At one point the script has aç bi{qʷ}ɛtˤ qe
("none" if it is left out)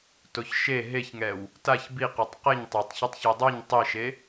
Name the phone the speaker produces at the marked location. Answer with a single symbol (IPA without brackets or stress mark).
q